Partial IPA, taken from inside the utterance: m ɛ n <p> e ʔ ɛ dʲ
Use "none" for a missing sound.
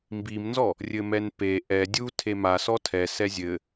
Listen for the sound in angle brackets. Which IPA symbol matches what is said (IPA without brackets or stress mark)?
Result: p